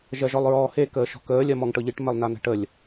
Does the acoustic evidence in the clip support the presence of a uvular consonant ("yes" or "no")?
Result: no